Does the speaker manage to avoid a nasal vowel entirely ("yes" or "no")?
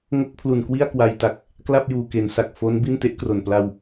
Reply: yes